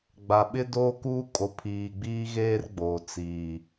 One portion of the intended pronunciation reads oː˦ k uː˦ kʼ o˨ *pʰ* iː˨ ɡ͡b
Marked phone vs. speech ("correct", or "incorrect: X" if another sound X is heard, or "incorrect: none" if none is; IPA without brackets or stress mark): correct